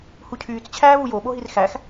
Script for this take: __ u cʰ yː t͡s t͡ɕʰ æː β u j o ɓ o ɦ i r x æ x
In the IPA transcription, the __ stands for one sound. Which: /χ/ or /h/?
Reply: h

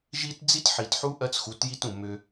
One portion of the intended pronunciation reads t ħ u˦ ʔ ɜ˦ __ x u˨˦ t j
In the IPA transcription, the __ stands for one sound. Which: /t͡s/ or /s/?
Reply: t͡s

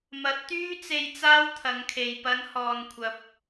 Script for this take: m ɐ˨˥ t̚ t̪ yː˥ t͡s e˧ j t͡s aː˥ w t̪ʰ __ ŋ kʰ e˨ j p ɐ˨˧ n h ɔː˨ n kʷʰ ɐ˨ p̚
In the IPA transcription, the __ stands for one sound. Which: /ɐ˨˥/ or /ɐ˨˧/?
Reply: ɐ˨˧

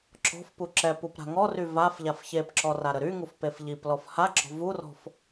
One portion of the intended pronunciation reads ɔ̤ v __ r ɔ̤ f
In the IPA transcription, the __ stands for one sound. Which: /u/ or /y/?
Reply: u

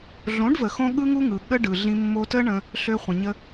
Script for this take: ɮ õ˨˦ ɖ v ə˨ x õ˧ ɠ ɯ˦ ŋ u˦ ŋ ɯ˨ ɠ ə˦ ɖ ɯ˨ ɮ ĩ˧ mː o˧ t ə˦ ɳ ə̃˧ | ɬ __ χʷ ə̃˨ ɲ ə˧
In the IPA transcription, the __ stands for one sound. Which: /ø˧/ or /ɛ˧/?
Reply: ø˧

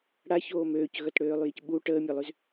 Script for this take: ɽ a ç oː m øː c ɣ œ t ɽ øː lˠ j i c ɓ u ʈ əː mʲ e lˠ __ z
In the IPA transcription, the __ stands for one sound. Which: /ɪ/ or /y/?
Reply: y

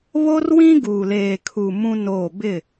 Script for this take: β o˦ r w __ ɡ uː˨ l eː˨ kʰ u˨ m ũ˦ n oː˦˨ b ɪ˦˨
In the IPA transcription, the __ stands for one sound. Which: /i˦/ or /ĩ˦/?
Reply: ĩ˦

